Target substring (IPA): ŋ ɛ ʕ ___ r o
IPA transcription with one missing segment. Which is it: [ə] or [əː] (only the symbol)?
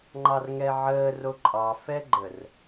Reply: əː